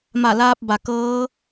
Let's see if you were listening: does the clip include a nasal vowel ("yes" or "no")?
no